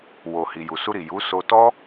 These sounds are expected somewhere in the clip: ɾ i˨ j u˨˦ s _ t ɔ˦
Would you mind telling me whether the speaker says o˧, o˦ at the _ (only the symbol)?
o˧